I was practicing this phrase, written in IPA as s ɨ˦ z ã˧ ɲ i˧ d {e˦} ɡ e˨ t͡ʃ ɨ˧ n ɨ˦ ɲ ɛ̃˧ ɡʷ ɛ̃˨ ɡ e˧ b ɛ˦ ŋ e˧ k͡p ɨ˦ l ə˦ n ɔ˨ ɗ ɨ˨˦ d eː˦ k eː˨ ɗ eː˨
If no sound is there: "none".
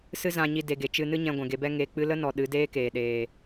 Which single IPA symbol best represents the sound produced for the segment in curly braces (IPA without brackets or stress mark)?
e˨